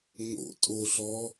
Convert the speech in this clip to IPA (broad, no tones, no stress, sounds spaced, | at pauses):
ŋ o̰ tʼ o ɬ ɔ